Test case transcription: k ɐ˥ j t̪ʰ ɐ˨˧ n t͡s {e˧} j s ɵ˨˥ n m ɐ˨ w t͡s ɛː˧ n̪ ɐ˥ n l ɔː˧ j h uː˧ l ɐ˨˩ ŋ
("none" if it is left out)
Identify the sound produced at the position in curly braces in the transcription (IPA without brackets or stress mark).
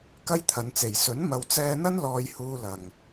e˨˩